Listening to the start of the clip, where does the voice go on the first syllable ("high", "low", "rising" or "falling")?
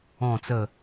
low